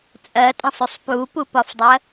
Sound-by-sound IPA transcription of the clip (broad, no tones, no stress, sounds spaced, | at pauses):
t͡sʼ ɜ tʼ ə̃ sˤ u sˤ p u p u p ɒ f dˤ ɜ